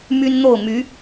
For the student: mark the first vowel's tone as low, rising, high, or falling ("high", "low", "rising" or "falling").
high